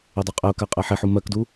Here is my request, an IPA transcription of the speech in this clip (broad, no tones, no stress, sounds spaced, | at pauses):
e dˤ a qʼ ɛ ʊ̯ k a qʼ ɛ ħ e ħ u m ɜ k d u